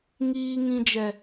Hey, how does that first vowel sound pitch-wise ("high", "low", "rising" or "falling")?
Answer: high